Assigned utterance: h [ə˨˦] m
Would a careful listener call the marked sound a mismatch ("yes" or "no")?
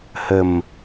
yes